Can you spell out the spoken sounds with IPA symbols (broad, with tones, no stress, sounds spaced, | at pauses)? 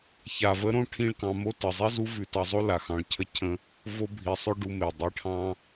ç a˨ v ə˧ ɾ õ˦˨ ʈʰ ĩ˦ ɭ k ɑ̃˧ m o˦ t ə˨ zˤ i˦ z u˦ v ʉ˧ t ɑ˧ zˤ o˦ l a˨ x ɑ̃˧ ɭ cʰ ə˦ cʰ ə̃˦ | v o˧ bʱ i˨ sˤ ʏ˦ ɖ u˧ m e˨ dˤ i˧ ʈʰ ɑ̃˦